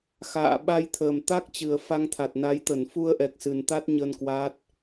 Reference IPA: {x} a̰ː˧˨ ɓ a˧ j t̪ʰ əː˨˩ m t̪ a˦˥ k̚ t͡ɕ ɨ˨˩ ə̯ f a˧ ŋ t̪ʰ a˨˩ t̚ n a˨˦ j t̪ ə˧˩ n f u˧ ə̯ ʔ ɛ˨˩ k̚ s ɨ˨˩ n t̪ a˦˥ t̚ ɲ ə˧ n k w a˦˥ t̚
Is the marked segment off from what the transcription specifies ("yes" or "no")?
no